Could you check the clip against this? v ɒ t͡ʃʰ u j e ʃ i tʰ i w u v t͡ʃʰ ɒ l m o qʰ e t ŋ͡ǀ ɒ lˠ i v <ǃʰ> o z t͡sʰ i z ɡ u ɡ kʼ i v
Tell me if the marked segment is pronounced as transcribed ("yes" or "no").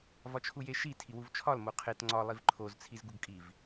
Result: yes